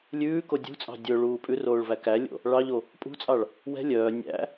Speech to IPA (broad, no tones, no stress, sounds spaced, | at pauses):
lʲ ʉː k o dʲ ṳ t͡sʼ ɑ̤ dʲ ɵ ɭ uː pʼ ʉ r oː ɭ v æ k æ lʲ o̰ | ɭ ɑ ʎ o | pʼ ṳ t͡sʼ ɑ ɭ | w ɛ̤ lʲ œː nʲ æ̰